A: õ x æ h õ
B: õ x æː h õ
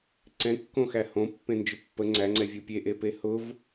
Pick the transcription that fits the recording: A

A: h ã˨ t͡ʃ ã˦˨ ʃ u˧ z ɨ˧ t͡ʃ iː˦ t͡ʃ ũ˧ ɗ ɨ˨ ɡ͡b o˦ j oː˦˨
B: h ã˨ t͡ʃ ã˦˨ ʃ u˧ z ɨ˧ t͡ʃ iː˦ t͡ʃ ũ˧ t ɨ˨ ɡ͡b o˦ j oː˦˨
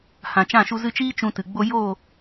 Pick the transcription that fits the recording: B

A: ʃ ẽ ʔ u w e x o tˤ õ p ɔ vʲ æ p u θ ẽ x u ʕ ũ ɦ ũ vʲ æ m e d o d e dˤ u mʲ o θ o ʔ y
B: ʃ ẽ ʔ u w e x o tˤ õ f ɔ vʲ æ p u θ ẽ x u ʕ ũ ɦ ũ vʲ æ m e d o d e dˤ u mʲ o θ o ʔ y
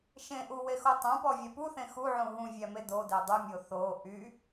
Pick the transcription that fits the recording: A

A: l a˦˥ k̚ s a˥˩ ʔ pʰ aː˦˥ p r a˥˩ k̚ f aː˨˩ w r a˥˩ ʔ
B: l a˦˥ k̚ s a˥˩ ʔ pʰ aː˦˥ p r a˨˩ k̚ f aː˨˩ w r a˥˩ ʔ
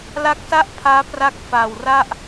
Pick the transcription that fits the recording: A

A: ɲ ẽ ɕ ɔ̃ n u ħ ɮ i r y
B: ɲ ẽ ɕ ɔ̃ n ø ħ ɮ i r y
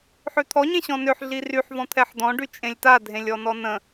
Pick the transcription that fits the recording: B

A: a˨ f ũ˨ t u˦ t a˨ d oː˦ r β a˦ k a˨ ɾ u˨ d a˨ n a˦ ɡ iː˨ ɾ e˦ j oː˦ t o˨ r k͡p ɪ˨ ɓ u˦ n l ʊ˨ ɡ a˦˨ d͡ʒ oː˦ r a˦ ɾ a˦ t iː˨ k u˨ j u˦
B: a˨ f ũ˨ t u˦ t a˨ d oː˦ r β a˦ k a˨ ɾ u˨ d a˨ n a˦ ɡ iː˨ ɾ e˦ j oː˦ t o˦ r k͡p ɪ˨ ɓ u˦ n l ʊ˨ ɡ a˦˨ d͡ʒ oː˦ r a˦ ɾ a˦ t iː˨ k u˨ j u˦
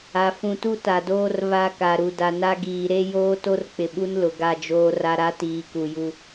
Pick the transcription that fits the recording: B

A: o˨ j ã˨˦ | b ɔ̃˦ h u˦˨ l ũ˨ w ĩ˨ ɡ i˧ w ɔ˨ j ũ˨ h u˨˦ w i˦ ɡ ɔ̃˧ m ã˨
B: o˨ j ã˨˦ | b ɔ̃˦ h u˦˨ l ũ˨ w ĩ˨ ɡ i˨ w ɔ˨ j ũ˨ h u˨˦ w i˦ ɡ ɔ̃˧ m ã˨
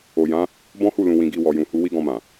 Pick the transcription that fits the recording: A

